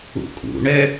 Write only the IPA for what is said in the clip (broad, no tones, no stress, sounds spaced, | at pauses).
ṵ kʼ ṵ ɳ ɛ